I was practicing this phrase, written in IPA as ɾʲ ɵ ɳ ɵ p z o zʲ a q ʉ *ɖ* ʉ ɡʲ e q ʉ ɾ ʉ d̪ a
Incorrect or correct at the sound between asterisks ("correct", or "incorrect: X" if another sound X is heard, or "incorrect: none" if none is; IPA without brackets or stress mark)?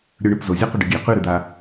correct